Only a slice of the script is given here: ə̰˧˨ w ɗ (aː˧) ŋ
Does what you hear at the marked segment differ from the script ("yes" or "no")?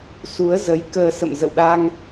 no